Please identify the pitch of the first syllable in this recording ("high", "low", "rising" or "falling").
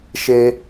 high